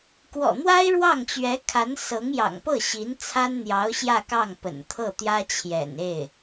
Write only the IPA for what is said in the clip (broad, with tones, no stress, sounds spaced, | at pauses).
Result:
k w ɔ̰˨˩ n̪ w a˥ ɪ̯ ɻ w ɑ˥˩ ŋ t͡ɕ ɥ ɛ˧˥ kʰ a˧˥ n s ɤ˧˥ ŋ j ɑ̰˨˩ ŋ p ɤ˥˩ ɕ i˧˥ n t͡sʰ a˥ n n̪ j ɑ˧˥ ʊ̯ ɕ j ä˥˧ k ɑ˥˩ ŋ p ə̰˨˩ n t̪ʰ ɤ˥˩ t̪ j ä˥ t͡ɕʰ j ɛ̰˨˩ n e˥˩ ɪ̯